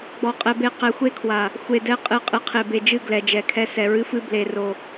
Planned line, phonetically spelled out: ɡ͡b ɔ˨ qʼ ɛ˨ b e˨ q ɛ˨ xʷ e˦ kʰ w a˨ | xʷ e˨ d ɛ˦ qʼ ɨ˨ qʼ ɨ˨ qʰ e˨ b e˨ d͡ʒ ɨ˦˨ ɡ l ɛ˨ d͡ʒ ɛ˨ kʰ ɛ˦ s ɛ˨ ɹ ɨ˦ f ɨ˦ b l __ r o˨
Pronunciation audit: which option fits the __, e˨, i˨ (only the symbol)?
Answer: e˨